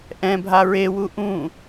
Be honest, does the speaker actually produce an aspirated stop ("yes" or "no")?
no